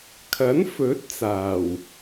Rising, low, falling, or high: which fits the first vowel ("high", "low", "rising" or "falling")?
rising